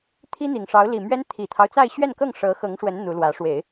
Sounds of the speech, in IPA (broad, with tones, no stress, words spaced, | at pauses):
t̪ʰi˥n̪i˨˩ŋʂɑ˧˥ʊ̯ li˨˩mɥɛ˥n t̪ʰi˨˩t̪ʰɑ˦ʊ̯t͡sa˥˧ɪ̯ ɕɥɛ˥˧nkɤ˥˩ŋ ʂɤ˧˥xɤ˧˥ŋ ʂwə˧˥n n̪u˧˥lwä˧˥ ʂwe˨˩˦ɪ̯